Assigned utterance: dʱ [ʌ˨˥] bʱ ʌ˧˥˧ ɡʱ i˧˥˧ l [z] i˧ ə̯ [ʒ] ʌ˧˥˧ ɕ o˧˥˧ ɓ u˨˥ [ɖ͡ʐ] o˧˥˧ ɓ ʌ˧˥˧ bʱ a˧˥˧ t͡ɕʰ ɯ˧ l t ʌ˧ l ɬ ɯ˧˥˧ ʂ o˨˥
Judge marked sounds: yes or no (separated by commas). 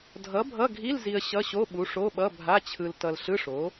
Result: yes, yes, no, no